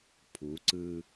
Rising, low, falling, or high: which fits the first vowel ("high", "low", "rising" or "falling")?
rising